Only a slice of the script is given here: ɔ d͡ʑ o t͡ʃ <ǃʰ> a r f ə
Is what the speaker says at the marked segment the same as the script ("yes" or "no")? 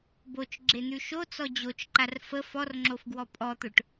no